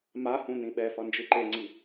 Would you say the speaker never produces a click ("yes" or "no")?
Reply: no